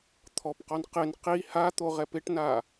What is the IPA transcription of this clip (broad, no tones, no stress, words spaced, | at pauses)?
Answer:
t̪ʰɔpqɔn qɪn qi hat̪oʁɛp ɪʈna